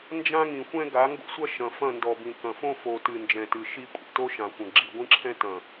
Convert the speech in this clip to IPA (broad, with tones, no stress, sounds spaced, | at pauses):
n d͡ʒ ã˦ ŋ ĩ˨ xʷ ɛ̃˦ ɡ a˨˦ ŋ ɡ o̰˦ sʷ ɐ˦ ʃ ɐ̃˨ f ɐ̃˦˨ n d ɔ˨ b ĩ˨ k ɐ̃˨ f õ˦ f o˨ t ɨ˨ n d͡ʒ ɛ̃˨ t ɨ˨ ʃ i˦ kʷʼ ḭ˨ t o˦ ʃ ã˨ xʷ ɐ̃˨ ɡ͡ǁ i˨ ɡʷ ĩ˦ ǁʰ ɛ̃˦ t ɐ̃˨